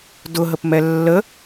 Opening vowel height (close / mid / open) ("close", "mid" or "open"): close